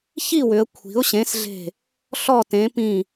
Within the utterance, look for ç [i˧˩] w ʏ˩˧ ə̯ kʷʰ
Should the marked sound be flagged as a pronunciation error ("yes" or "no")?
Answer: yes